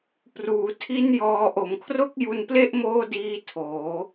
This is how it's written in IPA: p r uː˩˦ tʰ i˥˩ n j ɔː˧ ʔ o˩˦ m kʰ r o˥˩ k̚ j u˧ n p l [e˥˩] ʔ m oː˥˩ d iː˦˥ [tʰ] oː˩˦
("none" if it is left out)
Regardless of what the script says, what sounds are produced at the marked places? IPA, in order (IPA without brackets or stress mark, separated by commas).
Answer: e˥˩, tʰ